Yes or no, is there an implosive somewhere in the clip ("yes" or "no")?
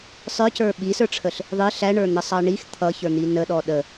yes